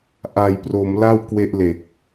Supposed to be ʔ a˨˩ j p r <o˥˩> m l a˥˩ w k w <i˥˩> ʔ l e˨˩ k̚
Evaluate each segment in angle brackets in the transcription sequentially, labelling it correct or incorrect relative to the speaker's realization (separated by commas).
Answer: incorrect, incorrect